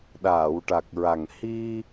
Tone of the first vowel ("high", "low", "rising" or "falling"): low